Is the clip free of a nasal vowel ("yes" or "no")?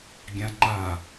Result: no